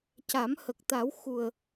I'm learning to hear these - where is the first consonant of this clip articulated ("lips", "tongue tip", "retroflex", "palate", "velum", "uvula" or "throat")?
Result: palate